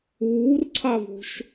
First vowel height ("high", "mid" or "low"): high